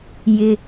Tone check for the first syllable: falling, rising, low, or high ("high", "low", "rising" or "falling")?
low